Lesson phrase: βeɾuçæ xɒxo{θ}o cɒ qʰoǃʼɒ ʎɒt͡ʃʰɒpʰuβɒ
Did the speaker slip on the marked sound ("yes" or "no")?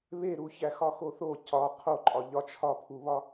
no